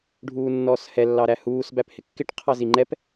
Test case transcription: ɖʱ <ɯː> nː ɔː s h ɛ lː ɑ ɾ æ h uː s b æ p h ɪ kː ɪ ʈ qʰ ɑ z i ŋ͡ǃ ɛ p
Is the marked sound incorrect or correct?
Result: incorrect